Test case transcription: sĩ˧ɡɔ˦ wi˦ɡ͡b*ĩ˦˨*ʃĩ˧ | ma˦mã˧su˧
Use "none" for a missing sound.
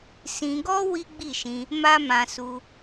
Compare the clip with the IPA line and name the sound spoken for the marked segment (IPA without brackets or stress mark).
i˦˨